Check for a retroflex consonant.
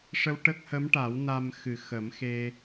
present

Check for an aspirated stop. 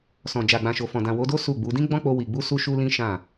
absent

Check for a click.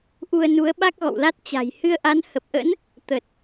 absent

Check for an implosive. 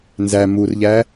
absent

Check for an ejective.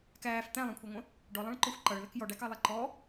absent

